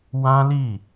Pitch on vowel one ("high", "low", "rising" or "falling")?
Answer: high